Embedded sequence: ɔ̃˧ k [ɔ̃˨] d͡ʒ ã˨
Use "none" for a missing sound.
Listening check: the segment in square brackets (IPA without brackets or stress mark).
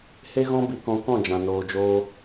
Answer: ɔ̃˦˨